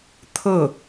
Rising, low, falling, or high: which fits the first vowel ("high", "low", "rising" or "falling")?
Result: falling